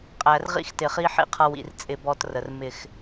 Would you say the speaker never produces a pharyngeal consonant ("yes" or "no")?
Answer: no